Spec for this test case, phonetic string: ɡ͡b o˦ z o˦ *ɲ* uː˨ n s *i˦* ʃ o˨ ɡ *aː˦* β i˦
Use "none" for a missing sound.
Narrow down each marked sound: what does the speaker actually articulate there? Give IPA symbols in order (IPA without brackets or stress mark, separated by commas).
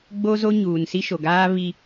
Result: ɲ, i˦, aː˦